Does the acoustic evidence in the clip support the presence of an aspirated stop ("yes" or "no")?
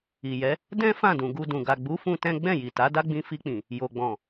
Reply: no